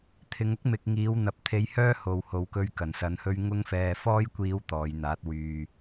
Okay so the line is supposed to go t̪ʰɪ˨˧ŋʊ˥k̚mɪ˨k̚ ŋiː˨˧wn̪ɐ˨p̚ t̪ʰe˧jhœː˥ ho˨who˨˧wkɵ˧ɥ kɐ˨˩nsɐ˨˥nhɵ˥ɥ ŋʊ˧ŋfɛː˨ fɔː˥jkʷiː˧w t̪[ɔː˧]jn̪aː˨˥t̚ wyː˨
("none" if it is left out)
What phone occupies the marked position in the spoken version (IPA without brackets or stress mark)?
ɔː˨˧